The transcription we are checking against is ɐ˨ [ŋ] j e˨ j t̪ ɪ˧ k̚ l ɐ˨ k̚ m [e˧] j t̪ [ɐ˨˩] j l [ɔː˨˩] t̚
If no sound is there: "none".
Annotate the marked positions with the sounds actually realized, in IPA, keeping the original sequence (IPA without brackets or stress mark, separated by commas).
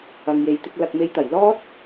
ŋ, e˧, ɐ˨˩, ɔː˥